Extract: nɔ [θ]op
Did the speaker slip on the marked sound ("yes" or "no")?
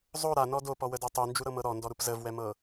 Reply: yes